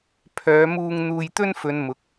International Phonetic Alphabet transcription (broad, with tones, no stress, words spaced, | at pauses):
pʰœː˨˧muː˧ŋ n̪uː˧jt̪ɵ˥nfɵ˨˧n mʊ˨˥k̚